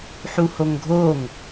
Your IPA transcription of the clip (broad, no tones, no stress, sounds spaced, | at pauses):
ħ u h o ŋ ɡʱ o ŋ